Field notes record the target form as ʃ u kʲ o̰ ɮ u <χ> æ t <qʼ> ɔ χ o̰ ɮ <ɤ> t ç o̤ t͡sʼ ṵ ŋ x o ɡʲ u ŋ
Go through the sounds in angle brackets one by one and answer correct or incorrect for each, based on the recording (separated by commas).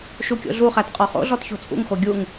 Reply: correct, correct, incorrect